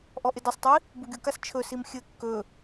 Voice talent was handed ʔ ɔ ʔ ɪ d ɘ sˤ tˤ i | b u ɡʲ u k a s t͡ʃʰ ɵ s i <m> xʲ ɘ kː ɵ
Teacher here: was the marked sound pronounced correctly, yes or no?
yes